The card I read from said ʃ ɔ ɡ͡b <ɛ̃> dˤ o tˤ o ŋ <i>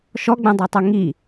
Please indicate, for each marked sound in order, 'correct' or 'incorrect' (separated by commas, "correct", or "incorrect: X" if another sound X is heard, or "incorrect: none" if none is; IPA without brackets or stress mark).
correct, correct